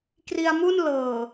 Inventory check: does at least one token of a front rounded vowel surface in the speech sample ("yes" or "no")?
no